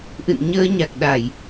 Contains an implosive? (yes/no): yes